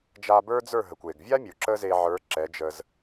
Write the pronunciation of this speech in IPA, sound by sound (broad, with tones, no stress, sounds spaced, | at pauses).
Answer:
d͡ʒ a˧ b ə˞˥ d͡z ə˞˥˩ ɦ ə˩ kʷ e˩ ɡ vʲ a˥ mʲ u˩ ǁ ə˥ z e˧ ʕ ə˞˩˥ ǁ ɛ˩˥ d͡ʒ ə˧ z